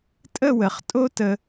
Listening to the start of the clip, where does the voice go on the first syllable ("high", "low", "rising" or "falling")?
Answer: falling